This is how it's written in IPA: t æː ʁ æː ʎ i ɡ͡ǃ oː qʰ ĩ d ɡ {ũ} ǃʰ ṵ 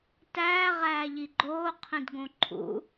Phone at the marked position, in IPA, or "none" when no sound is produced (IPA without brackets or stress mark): õ